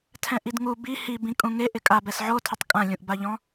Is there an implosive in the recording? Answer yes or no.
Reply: no